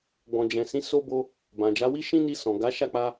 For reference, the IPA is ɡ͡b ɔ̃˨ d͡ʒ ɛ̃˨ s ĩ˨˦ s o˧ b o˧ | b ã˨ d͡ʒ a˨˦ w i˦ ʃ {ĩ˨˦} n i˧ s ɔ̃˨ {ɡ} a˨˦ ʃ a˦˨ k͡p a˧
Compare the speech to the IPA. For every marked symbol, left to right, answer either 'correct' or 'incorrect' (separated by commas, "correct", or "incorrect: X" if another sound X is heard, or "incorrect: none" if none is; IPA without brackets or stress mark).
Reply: incorrect: ĩ˦, correct